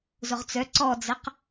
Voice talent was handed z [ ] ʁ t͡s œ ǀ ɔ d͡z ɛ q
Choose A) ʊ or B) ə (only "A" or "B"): A